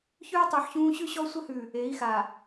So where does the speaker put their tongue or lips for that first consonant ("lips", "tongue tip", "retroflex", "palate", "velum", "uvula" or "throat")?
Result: palate